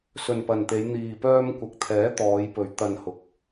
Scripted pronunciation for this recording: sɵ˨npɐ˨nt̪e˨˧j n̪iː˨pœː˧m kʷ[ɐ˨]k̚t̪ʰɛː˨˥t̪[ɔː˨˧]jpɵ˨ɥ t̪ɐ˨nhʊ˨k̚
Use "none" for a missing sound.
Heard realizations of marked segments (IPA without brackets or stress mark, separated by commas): ɐ˨, ɔː˨˧